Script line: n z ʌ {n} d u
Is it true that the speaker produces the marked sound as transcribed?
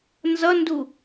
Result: yes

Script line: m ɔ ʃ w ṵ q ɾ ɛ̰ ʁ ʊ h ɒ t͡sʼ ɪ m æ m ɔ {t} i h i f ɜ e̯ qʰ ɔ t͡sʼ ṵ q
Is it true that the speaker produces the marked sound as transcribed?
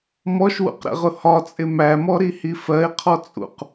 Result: no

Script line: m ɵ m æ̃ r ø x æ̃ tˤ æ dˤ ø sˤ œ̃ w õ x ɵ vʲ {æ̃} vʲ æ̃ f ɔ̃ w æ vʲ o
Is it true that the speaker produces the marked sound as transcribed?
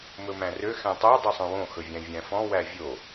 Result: yes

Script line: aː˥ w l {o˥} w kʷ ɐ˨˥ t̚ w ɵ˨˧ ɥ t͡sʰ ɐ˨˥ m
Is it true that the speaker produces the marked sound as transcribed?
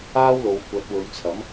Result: no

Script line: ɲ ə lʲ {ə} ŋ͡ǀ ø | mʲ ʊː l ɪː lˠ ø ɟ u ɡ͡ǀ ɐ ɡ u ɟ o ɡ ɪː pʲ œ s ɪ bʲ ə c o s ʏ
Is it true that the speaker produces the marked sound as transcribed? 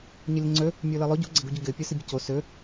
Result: yes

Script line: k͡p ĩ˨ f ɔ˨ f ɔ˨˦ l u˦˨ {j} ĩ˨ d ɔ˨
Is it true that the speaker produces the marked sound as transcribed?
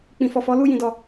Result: yes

